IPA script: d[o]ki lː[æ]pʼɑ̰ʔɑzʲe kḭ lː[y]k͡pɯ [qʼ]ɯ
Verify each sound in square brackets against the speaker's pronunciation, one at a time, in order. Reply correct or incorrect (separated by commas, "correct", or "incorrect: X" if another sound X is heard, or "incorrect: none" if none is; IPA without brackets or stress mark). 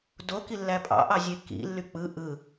correct, correct, correct, incorrect: ʔ